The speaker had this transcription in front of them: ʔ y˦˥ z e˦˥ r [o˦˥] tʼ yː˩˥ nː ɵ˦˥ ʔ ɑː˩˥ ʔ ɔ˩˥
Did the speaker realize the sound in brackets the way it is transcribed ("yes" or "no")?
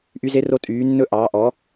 yes